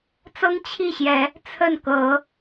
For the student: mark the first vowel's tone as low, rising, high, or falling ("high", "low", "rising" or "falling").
high